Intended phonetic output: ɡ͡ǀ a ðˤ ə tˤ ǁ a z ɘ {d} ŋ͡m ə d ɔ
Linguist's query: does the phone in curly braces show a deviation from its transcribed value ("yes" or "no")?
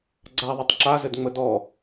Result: no